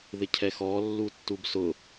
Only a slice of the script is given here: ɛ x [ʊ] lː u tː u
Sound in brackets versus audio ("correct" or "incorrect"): incorrect